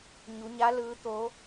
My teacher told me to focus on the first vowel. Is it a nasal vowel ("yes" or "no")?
no